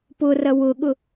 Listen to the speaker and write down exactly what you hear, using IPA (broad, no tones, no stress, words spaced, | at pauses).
pʊrɐ wʊɠʊ